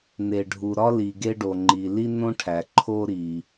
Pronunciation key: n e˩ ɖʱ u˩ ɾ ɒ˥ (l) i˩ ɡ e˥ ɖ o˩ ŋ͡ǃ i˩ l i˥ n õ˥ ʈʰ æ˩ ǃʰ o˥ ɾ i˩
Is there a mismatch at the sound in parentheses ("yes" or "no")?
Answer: no